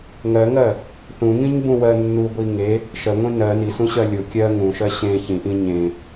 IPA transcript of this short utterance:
ŋ ɜ ŋ ɜ | θ ũ ŋ ĩ ɲ b ũ w ɜ nː u ɡʷ i ŋ e | ʃ ɜ ŋʷ ẽ n ɜ n i s ũ ɕ ɜ lʲ ʊ kʲ ɜ ŋ ũ ʃ ɜ ɕ ẽ ç ĩ ʔ ĩ ɲ ẽ

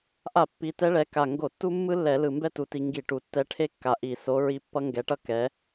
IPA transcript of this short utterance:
ʔ a˧˩˧ pː i˩˧ t ɛ˧˥ ɭ ɛ˩˧ k a˨˩ ŋ ɡ o˧˩˧ tː u˥ mː ɯ˥ lː ɛ˧˩˧ l ɯ˨˩ m b ɛ˥ t u˩˧ t i˩˧ ŋ ɡ i˧˩˧ ʈ u˩˧ tː ɛ˧˥ ʈʰ e˥ kː a˨˩ ʔ i˧˩˧ s o˧˥ ɹ i˧˥ pː ʌ˥ ŋ ɡ ɛ˧˥ ʈ ʌ˥ k ɛ˧˥

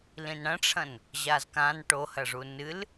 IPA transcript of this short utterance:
l ĩ n ɽ ɐ̃ ʈ͡ʂʰ ɐ̃ n | ʑ a z k ã n ʈ o h ɐ ʐ u n ɨ l

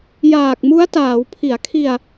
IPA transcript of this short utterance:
j aː˨˩ k̚ m u˦˥ a̯ t aː˩˦ w pʰ i˩˦ a̯ kʰ i˧ a̯

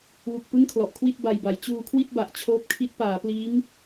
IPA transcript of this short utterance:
w u˨˩ k̚ p ɯ˥˩ ŋ kʰ l ɔ˨˩ ʔ kʰ w i˥˩ t̚ b a˧ j b a˩˦ j t͡ɕ uː˧ kʰ w i˥˩ t̚ b a˨˩ ʔ t͡ɕʰ oː˦˥ p̚ kʰ i˦˥ t̚ p aː˩˦ p l iː˦˥ ŋ

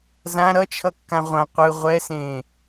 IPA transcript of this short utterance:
z ã ɾ ʌ t͡ʃʰ ʌ kː ã ʁʷ ã qʷ ɯ ʁʷ ɛ s ẽː

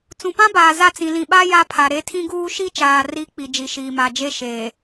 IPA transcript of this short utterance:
t͡s ũ˨ p ã˦ b aː˨ z a˦˨ t͡s ĩ˨ l ĩ˨ ɓ a˦ j a˦ pʰ a˨ ɾ e˦ tʰ ĩ˦ ɡ uː˦ ʃ i˦ t͡ʃ aː˨ r i˨˦ k͡p i˨ d͡ʒ i˨ ʃ iː˨ m a˨ d͡ʒ e˦˨ ʃ eː˨

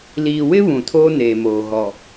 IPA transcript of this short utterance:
l iː˨ w ɪ˦ β ũ˨ tʰ oː˦ n eː˨ m oː˨ ɣ ɔ˨

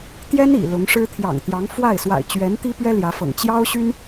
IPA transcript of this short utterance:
t̪ j ɛ˥ n ḭ˨˩ l ʊ˧˥ ŋ ʂ ɻ̩˥ t̪ʰ j ɑ̰˨˩ ŋ t̪ j ɑ˧˥ ŋ f w a˥˩ ɪ̯ s w a̰˨˩ ɪ̯ t͡ɕ ɥ ɛ˧˥ n t̪ i˥ p ɥ ɛ˥ l j ä˧˥ f ɤ̰˨˩ ŋ t͡ɕ j ɑ˥ ʊ̯ ɕ y˥ n

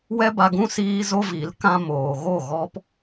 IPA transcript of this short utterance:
w ɛ˦ b a˧ ɡ ũ˦ s iː˦ z o˦ v i˨˦ l k ã˦ m oː˨ ɣ o˦˨ ɣ ɔ˦ p

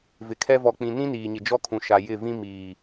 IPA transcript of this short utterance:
v ɪ˨ kʰ ɛ˦ v ɔ˨ k͡p ĩ˨ n ĩ˦ n iː˨ ɲ ɪ˨ d͡ʒ ɔ˦ kʰ ũ˨ ʃ a˨ j ɪ˦˨ v ĩ˦ m iː˨

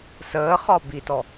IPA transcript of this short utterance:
s əː χ ɒ b i t ɔ

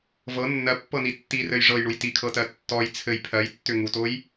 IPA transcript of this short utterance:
v ɤ nː ɜ pː ɤ n i tː i r ɘ j ʐ ɤ j ɳ u j t i kʰ ɤ t ɜ tː ɔ j t͡sʰ ɘ j pʰ ɜ j tː ʏ ŋ u t o j

